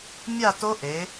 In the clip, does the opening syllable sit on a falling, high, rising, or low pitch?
falling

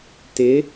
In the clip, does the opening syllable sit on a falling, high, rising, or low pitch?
rising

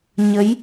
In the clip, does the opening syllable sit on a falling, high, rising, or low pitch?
rising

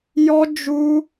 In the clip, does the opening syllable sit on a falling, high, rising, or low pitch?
high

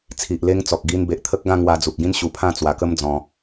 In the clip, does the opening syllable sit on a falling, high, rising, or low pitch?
low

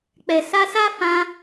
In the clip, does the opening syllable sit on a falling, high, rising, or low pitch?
low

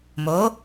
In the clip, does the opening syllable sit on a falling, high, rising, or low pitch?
rising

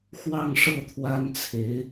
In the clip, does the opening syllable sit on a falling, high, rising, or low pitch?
falling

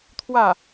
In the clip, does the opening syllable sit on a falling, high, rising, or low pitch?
falling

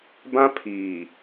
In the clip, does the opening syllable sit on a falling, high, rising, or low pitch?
high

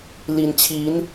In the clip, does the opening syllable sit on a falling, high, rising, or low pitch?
low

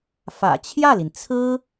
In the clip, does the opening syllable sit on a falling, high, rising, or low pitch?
low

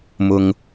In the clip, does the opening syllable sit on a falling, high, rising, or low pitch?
low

